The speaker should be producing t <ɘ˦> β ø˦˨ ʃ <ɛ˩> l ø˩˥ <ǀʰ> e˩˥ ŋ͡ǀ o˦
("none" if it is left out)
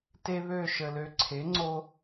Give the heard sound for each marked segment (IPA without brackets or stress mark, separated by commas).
e˦, ə˩, ǀʰ